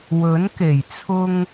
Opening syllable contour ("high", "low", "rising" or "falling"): rising